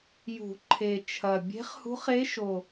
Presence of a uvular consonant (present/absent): present